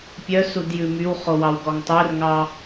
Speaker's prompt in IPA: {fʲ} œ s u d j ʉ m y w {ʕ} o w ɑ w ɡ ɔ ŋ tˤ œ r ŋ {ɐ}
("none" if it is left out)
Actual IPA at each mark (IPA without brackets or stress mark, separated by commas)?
pʲ, χ, ɑ